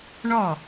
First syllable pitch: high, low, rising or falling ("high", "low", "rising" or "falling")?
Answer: falling